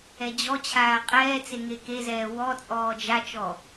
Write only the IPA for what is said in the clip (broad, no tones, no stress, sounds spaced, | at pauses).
ɛ d͡ʑ ɔ t͡ɕʰ aː qʼ ɛː t͡s e ŋ e k e z ɛː w ɔ t͡sʼ ɔː d͡ʒ a t͡ʃ ɔ